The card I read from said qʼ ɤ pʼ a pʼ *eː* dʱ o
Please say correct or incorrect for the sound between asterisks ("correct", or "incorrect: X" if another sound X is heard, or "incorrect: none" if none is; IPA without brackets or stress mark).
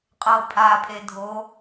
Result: incorrect: e